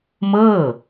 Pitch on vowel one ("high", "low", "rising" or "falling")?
falling